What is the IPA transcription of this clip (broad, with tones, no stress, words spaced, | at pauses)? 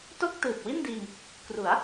to˥˩k̚tɯː˨˩p̚wi˥˩ndiː˧ŋ | kru˩˦a̯